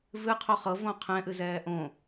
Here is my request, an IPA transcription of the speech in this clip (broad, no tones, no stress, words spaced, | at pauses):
vɨqʰo χɤvõ qʰɛ̃ʔɨzɛː ʔõ